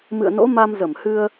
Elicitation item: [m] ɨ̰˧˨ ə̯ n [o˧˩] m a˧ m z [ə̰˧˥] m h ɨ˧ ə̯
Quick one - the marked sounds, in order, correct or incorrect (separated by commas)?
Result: correct, incorrect, incorrect